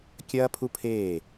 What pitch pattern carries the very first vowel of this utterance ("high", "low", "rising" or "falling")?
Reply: high